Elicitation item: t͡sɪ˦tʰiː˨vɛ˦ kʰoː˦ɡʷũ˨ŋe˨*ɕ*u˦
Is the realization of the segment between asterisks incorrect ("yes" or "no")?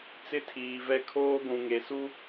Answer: yes